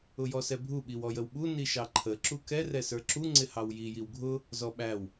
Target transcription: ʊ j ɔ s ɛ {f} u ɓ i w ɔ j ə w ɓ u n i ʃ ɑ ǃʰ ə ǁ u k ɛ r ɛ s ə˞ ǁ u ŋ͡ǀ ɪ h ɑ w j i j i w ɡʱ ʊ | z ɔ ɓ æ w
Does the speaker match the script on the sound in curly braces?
no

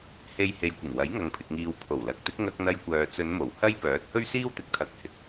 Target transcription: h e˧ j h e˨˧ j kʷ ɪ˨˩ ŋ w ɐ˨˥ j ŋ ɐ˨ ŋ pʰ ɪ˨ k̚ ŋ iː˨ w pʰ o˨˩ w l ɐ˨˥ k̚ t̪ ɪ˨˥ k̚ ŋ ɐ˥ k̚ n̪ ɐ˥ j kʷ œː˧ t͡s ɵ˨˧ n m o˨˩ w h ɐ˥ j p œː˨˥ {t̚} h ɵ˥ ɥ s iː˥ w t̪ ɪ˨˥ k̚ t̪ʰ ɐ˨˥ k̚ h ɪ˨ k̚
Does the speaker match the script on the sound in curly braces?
yes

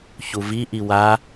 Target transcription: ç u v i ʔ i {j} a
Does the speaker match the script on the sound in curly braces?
no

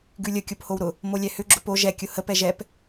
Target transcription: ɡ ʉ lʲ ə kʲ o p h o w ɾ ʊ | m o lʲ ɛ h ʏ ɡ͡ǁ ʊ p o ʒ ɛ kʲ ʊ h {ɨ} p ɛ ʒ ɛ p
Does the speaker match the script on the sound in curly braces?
no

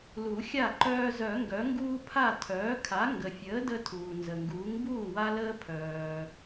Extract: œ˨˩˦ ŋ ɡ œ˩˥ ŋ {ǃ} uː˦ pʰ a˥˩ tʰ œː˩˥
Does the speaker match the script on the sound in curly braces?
no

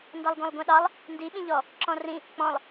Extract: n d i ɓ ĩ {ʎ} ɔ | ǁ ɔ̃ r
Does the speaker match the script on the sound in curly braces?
yes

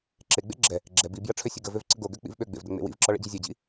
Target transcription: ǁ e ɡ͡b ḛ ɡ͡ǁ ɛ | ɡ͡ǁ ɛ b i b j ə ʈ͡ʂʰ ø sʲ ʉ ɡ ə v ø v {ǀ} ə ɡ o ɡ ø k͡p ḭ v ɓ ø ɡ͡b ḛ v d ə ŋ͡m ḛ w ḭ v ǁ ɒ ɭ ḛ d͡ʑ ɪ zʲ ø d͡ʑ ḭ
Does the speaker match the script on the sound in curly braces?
yes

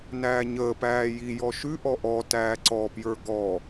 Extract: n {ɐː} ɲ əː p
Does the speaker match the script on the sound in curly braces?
no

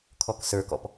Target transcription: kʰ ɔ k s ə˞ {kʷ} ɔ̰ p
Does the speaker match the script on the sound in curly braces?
no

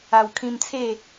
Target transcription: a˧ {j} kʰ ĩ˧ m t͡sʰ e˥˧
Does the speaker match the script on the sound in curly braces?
no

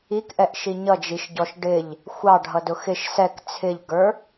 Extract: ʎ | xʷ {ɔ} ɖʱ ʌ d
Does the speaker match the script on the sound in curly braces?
no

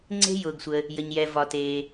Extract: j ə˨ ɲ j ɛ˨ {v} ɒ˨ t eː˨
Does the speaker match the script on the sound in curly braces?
yes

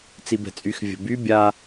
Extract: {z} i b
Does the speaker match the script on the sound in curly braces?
no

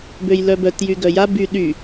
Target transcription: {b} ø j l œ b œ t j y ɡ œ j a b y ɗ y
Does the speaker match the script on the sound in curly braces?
yes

